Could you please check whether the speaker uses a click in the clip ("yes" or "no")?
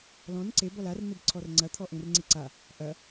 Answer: yes